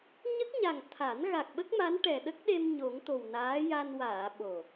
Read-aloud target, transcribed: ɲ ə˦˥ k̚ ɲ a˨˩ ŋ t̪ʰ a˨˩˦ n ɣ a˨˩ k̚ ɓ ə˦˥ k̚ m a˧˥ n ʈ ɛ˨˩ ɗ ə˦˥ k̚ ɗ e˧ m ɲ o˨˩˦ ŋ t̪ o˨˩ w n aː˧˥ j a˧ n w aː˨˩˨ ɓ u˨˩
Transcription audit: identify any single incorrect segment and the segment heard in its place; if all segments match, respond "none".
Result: u˨˩ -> o˨˩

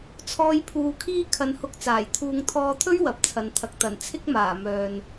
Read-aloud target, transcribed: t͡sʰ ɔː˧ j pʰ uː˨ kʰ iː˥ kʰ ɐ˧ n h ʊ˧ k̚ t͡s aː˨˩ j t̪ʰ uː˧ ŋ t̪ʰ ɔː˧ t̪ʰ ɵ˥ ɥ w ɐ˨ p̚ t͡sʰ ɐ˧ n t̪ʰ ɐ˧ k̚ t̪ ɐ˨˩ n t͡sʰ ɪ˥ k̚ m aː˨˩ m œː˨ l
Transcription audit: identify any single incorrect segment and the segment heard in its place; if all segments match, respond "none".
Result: l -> n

